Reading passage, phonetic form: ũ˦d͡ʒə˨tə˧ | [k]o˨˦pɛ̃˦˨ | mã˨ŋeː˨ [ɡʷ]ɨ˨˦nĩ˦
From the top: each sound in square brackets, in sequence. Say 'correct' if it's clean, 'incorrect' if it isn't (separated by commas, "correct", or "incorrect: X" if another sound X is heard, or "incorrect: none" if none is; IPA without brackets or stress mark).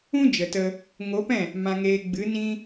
incorrect: ŋ, incorrect: ɡ͡b